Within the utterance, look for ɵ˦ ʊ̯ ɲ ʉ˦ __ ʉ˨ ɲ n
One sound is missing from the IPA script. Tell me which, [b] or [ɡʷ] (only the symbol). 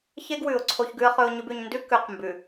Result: b